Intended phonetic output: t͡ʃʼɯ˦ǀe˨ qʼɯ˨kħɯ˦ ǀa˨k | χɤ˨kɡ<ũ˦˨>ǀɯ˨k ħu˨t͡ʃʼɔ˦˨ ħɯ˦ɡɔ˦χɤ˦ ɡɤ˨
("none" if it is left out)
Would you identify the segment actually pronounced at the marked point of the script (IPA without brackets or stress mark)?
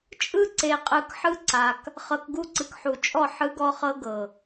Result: u˦˨